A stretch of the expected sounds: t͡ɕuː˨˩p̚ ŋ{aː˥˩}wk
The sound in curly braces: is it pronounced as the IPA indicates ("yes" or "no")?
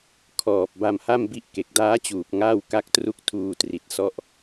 yes